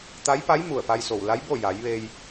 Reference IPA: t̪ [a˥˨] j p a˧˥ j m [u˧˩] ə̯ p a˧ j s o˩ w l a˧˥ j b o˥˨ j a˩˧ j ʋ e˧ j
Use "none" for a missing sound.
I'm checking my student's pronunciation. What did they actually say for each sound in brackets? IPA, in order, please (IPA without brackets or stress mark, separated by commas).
a˧˥, u˧˩